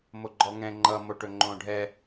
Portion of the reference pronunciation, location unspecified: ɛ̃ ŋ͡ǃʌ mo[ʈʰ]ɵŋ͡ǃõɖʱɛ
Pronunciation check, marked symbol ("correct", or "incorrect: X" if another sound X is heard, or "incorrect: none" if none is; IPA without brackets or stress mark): incorrect: ʈ